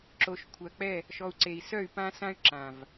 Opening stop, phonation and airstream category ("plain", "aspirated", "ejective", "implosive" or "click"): click